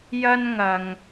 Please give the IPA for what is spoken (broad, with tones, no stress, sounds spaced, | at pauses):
j ɐ˥ n ŋ ɐ˨ ŋ